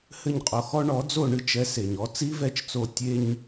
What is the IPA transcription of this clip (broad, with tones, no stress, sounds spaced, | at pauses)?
h ɘ˥˩ ɲ qʼ o˧ x ɔ˥ ɳ ɔ˩˥ d͡z o˥˩ ɳ ɨ˧ t͡ʃ ɛ˩˥ s e˩ ɲ ɔ˩˥ t͡s i˥ v ɛ˥˩ t͡ʃ t͡s o˧ tʲ e˧ ɲ